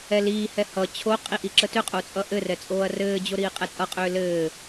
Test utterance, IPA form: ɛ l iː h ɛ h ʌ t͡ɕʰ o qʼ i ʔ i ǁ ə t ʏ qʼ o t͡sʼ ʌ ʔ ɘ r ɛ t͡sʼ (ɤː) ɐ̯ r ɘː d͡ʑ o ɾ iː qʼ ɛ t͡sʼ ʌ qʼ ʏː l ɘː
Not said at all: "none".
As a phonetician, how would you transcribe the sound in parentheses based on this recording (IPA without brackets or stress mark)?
oː